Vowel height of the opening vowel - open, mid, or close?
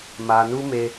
open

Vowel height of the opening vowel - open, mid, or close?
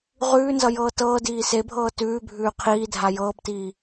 close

